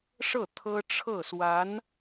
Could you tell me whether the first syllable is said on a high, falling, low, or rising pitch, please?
falling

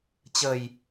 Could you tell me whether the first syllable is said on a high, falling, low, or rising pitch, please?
low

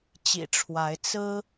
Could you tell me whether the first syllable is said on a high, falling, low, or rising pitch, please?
low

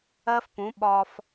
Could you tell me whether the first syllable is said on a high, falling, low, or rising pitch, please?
high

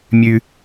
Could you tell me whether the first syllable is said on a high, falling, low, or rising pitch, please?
low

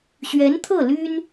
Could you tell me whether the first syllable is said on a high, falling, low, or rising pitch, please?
rising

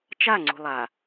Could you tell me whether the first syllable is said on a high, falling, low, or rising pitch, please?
falling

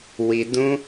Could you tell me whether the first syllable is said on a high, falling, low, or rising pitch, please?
low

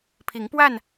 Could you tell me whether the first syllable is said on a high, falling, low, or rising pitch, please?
rising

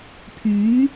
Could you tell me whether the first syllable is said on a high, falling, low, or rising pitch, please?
rising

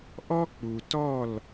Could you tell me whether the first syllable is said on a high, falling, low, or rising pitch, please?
high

